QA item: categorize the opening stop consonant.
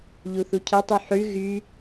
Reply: aspirated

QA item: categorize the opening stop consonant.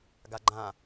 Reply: plain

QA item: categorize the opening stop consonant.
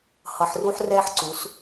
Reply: click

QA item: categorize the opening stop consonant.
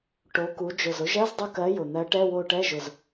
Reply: plain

